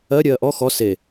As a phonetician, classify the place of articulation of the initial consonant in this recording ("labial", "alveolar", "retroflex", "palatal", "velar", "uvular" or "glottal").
alveolar